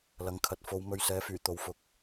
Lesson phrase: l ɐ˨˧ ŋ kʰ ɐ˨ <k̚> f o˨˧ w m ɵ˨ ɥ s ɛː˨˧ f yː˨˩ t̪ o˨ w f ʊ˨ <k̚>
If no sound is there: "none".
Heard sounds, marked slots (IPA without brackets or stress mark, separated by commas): t̚, k̚